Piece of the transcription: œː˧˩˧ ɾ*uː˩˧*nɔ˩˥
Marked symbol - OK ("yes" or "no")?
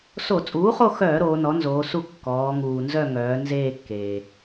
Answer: no